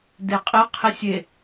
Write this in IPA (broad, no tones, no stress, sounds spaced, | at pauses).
d e qʼ i qʰ i sʲ e